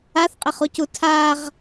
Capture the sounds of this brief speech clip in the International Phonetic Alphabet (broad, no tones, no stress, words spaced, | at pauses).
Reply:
aθqʼɪχucu tʰaʁ